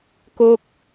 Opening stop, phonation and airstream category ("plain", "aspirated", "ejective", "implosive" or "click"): plain